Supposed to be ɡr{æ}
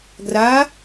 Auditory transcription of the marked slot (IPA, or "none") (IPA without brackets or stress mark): a